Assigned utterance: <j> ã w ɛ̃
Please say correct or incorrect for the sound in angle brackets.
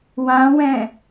incorrect